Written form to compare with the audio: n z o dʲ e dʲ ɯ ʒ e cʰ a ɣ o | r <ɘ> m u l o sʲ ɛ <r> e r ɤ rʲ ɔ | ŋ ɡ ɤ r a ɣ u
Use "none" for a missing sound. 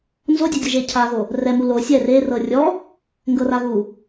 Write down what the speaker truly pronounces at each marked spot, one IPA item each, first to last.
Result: ɛ, r

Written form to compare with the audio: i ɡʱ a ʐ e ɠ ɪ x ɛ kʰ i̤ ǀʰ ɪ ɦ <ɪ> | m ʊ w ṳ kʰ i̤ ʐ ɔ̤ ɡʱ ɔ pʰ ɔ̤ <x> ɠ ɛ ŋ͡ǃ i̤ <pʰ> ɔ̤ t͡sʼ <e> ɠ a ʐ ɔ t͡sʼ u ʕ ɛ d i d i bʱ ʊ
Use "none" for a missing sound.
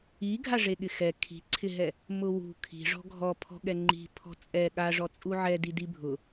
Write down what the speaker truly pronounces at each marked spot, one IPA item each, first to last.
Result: ɛ, none, pʰ, ɛ

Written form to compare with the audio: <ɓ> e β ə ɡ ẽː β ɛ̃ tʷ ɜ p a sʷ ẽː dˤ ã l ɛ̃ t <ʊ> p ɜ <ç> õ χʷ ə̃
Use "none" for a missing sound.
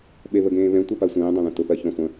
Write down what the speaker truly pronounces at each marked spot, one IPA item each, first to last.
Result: ɓ, ʊ, ç

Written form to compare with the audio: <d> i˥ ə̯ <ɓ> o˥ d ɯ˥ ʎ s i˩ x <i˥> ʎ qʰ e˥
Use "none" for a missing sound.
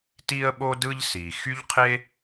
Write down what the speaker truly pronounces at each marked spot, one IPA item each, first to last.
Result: t, ɓ, y˥

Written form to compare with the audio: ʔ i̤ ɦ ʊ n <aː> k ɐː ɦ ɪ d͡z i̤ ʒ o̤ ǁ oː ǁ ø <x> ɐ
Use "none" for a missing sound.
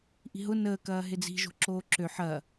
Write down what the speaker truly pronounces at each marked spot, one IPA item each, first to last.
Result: əː, ħ

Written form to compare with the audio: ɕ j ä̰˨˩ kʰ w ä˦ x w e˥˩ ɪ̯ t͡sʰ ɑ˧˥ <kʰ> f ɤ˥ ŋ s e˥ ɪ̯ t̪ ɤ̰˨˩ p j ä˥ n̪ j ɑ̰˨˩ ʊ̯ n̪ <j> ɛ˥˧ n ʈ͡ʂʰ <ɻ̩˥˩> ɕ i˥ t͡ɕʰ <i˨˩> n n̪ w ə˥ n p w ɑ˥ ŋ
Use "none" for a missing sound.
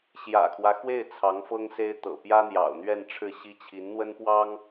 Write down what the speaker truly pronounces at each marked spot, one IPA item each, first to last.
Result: ŋ, ɥ, ɻ̩˥˩, i˧˥

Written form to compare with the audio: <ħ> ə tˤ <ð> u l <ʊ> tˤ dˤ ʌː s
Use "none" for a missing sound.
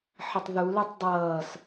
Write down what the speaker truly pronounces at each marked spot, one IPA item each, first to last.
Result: ħ, ð, ʊ

